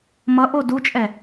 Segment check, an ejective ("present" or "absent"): present